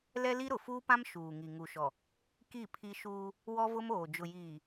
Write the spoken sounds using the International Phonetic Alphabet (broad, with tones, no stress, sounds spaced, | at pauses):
l ɛ˦ l i˦ ɾ ʊ˨ f uː˦ p ã˦ m ʃ uː˨ ŋ i˨ ŋ u˨ ʃ ɔ˨ | k i˦˨ pʰ i˦ ʃ uː˦ | w ɔ˦ v ʊ˦ m oː˨ d͡ʒ ʊ˨ j iː˨